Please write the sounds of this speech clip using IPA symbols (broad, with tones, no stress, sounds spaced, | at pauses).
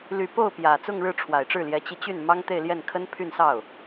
l y˨˩ p o˥˩ ʊ̯ p j ä˨˩ t͡s ʊ˥˧ ŋ ɻ ɻ̩˥˩ ʈ͡ʂʰ w a˨˩ ɪ̯ ʈ͡ʂ ɻ̩˥˩ l j ɛ˧˥ t͡ɕ i˧ t͡ɕ y˥˩ n m ɑ˥ ŋ t̪ e˥˧ ɪ̯ l j ɛ˥˩ n kʰ ə˥ n pʰ y˥˧ n s ɑ˥˩ ʊ̯